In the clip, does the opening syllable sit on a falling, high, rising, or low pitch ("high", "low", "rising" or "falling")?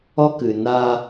high